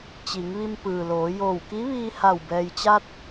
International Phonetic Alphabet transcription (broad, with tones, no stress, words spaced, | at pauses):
t͡ɕi˩˧ŋʋi˧mpɯː˩loː˩˧ joː˧˩wki˧˥ʋiː˧ha˧˩w bɛː˩jt͡ɕa˧t̚